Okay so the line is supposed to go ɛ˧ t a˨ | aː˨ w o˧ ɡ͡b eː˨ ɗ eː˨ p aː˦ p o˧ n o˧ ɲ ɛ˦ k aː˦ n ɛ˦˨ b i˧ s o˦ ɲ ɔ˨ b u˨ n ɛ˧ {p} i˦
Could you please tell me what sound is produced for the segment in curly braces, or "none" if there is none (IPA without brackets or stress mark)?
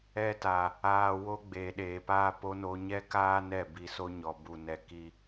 k